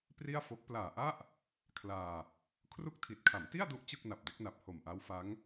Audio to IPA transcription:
pri˥˩a̯fo˦˥k̚ plaː˨˩ʔa˥˩ʔ | kʰlaː˧ | kʰru˥˩k̚tʰi˨˩t̚ kʰa˩˦mti˥˩a̯du˦˥ʔ t͡ɕɯ˥˩k̚na˨˩p̚de˦˥k̚na˨˩p̚ ho˨˩mʔa˦˥wfa˦˥ŋ

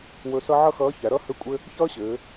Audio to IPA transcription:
wɵ˧sʌ˥ ʕʌ˥xʌː˧˥çæ˩˧ɾʌ˥ hɘ˥kʷʼɘ˥ | çʌː˥ɕɘː˩˧

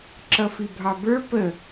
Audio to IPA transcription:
ǁʌfibʱɑbə˞ pə

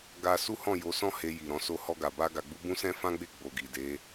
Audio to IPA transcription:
ɡa˧ su˦hɔ̃˦˨ jo˨˦sɔ̃˦ he˧ji˨ɾɔ̃˧so˦ hɔ˧ɡa˨ba˧ ɡa˨ɡ͡bu˧bũ˦sɛ̃˦ fã˦ɡ͡be˦˨ ɡ͡bo˨ɡi˨de˨˦

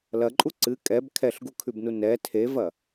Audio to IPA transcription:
lɐǃʼu ǀɨ kʼɛb kʰɛɬɡukʰʉbnu nɛ tʰevɐ

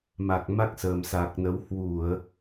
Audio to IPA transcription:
ma˨˩k̚ma˦˥k̚ səː˨˩msa˨˩k̚nə˨˦w hwu˧˩˨ə̯

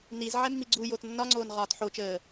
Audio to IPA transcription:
nizʕɛ mːiɡ͡ǀujot nːɒŋ͡ǀoːn ʁɒːtħot͡ʃəː

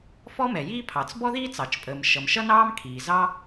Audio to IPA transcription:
fɔ˥mɛ˩jiː˥ pʰɑ˩t͡s bɔ˥ðiː˥ t͡sɑ˩t͡ʃpʼəː˩m ʃʌ˩mʃʌ˥nɑː˥m kʰiː˩zɑ˥

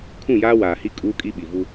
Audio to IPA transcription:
kʰũ˦˨jaː˦waː˨hi˦ kʼuː˦kʼi˦ɓi˨vu˦

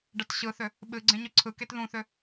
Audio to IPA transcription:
ɖɐtɕɯθʏ | ɓɨɡ͡ǀẽɲ ʏǀʰɯket ðũθʏ

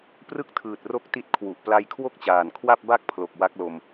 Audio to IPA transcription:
prɯ˥˩k̚tʰɯː˨˩t̚ro˦˥k̚ ti˦˥t̚kʰwu˨˩ʔ pla˧jkʰwo˥˩k̚t͡ɕaː˨˩n kʰwa˥˩p̚ba˥˩k̚pʰlo˨˩k̚ wa˦˥k̚lo˧m

